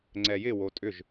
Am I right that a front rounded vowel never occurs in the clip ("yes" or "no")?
no